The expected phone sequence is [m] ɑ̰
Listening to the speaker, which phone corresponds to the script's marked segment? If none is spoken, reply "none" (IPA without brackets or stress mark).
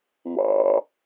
m